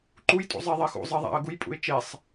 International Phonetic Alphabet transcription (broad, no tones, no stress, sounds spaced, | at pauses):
ǃ u j tʼ ṵ zˤ e ðˤ e x ṵ zˤ e ðˤ æ̰ ə̯ ɡ u j pʼ ṵ ɪ̯ t͡ʃ e sˤ